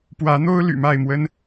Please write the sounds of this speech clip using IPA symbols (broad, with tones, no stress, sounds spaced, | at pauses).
p w ä˨˦ n̪ o˦ ʊ̯ l y̰˨˩ m a˥˨ ɪ̯ m w ə˦ n